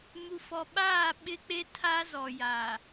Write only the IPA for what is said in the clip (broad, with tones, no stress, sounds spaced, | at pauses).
m u˨ f ɔ˨ ɓ aː˦˨ ɓ ɪ˦ k͡p e˦ tʰ a˦ z ɔ˨ j aː˨